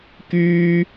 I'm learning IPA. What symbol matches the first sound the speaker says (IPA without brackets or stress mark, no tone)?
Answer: k